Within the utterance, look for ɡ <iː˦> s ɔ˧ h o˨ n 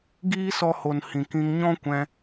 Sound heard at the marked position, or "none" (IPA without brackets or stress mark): iː˦